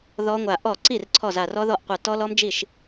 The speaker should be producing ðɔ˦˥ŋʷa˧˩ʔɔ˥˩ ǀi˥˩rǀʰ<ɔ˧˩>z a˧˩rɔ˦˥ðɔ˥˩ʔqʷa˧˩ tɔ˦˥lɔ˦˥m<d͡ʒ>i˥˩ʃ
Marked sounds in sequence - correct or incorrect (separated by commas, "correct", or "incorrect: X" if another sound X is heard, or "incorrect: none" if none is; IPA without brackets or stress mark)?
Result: correct, correct